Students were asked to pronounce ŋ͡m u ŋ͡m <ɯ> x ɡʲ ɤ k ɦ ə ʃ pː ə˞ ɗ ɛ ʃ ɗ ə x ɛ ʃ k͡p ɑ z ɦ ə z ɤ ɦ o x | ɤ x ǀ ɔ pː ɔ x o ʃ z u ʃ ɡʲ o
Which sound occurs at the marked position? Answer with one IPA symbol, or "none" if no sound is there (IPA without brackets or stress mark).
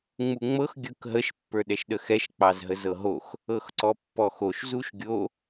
ɤ